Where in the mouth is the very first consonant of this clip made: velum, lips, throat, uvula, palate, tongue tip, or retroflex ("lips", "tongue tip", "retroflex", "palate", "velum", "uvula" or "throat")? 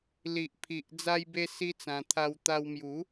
tongue tip